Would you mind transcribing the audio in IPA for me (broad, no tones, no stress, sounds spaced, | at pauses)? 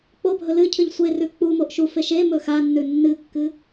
k͡p o bʱ ɵ l ɨ cʰ ɨ ʎ sʷ e r ʉ k͡p u m o ʔ ʃ u f e ʃ e m ɵ x a nː ʉ nː ɨ kː ɨ